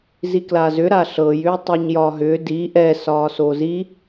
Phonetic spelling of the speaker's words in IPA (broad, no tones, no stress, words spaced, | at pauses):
ziklazʏ ɾaɬɤj ʏːtˤɛɲjɒɦʏː di ʔɛ sɒːsozi